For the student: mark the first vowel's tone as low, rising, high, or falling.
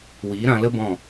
rising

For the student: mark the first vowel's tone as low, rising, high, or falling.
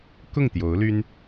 falling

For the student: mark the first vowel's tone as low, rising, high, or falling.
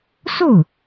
falling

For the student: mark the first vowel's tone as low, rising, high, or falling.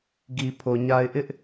low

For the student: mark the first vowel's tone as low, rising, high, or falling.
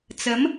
rising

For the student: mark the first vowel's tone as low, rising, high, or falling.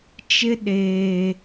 high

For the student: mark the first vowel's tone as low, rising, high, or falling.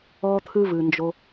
high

